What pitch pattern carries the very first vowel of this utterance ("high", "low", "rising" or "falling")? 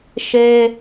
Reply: high